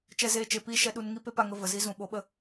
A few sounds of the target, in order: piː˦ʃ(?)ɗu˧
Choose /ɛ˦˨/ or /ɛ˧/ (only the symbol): ɛ˧